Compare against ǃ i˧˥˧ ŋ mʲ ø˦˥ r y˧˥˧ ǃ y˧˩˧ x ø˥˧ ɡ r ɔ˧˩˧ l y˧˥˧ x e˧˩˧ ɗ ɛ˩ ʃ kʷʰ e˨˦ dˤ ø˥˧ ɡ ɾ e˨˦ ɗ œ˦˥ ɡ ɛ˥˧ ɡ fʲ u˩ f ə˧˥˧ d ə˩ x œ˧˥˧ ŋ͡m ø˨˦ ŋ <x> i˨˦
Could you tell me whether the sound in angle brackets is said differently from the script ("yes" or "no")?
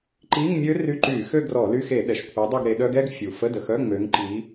yes